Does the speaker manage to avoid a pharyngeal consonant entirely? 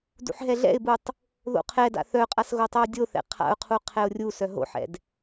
no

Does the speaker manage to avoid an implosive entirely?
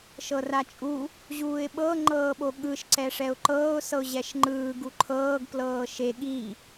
no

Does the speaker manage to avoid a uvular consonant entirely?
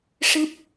yes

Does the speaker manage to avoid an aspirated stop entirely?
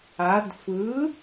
yes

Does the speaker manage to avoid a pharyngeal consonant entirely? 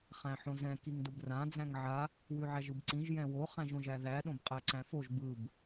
no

